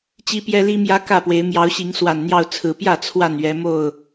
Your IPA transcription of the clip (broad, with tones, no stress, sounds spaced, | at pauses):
t͡ɕ i˦ p j ɛ˦ l i˦ m j ä˦ k ä˥˨ p w e˨˦ ɪ̯ m j ɑ˨˦ ʊ̯ ɕ i˨˦ ŋ s w a˨˩ n n̪ j ɑ˥˨ ʊ̯ t͡sʰ ɹ̩˨˩ p j ä˥˨ t͡sʰ w a˥˨ n ɥ ɛ˨˦ m o˥˨ ʊ̯